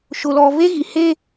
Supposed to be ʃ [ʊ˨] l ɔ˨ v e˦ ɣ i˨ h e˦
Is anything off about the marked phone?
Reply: no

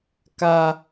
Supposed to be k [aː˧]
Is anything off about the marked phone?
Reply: yes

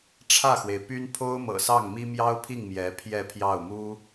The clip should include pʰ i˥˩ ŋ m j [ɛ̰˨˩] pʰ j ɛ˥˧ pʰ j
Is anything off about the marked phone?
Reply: yes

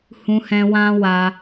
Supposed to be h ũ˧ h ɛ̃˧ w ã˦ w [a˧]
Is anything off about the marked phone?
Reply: no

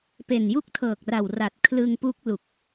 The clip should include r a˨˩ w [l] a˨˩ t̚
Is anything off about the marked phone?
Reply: yes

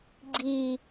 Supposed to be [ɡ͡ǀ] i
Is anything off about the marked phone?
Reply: no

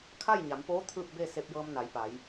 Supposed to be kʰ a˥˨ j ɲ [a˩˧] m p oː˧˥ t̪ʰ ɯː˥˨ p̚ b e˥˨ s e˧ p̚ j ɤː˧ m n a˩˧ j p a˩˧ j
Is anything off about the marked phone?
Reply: no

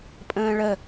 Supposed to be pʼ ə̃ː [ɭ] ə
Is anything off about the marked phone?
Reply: no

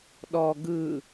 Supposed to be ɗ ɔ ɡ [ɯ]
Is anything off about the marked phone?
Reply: no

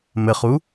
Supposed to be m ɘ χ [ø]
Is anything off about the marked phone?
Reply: yes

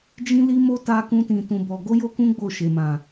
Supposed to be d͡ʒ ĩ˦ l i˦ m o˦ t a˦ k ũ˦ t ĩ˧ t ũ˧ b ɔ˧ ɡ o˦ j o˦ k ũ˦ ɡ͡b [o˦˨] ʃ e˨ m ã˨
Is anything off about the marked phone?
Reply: no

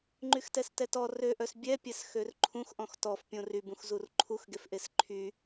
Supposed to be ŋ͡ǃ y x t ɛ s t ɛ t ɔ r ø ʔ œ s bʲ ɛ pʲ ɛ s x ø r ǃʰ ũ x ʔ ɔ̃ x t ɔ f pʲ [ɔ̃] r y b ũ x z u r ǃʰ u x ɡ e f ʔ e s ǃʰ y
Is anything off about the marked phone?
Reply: yes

